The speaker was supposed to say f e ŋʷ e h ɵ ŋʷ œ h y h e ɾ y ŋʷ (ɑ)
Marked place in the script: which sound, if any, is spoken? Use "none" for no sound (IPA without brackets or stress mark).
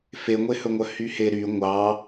ɑ